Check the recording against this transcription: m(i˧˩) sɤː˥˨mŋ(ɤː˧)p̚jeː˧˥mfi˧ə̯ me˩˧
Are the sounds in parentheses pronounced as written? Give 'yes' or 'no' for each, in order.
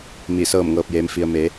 yes, yes

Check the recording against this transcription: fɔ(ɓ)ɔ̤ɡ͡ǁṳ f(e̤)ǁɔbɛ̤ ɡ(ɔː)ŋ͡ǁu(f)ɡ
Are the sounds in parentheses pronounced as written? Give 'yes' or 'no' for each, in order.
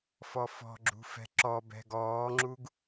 no, no, yes, no

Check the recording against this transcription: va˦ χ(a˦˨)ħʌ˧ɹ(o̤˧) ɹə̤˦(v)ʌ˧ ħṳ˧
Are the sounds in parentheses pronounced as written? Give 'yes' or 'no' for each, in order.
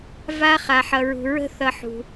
no, no, no

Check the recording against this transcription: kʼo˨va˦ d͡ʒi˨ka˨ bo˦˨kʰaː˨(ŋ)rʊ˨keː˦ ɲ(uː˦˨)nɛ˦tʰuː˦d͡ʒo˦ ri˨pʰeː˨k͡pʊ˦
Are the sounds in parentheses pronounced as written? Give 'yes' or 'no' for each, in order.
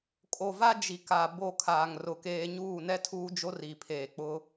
yes, yes

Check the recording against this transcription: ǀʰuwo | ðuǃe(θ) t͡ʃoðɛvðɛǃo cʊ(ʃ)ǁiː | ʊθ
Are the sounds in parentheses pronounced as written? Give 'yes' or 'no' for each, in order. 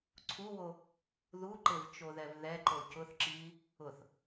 no, no

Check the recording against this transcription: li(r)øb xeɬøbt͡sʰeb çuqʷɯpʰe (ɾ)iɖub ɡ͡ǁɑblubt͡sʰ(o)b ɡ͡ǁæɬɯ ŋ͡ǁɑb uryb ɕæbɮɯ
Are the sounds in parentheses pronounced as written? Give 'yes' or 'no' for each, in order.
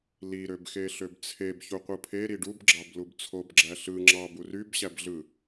no, yes, yes

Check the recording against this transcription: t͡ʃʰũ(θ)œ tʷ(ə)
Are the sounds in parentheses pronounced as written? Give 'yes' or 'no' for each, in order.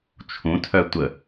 no, yes

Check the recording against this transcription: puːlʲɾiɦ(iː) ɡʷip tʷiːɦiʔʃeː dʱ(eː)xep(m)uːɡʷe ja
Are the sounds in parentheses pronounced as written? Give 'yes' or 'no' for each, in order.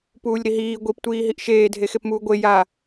yes, no, yes

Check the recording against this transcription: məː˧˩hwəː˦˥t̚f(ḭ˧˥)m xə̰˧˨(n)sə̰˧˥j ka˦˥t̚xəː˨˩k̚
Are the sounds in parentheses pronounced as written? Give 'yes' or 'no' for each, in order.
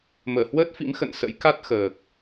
yes, yes

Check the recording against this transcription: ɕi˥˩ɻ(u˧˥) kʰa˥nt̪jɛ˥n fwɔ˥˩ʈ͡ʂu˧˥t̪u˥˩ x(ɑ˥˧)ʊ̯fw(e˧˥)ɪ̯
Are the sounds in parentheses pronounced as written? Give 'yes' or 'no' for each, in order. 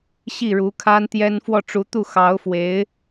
yes, no, yes

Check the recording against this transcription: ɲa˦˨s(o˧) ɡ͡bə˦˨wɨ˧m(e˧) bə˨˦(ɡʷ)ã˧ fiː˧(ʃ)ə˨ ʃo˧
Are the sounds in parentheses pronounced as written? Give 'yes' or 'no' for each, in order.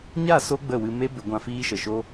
yes, no, yes, yes

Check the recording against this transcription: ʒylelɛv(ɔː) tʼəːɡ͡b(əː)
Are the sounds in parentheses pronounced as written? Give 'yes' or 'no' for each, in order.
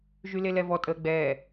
no, no

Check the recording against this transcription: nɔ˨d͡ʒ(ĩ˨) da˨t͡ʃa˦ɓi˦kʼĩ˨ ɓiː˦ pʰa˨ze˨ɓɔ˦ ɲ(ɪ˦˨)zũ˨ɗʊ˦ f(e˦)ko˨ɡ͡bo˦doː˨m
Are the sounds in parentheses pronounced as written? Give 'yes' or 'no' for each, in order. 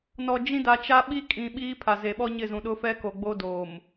no, yes, no

